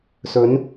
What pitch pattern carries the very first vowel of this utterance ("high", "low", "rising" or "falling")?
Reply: rising